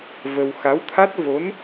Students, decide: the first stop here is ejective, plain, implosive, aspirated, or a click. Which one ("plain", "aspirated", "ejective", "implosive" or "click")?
aspirated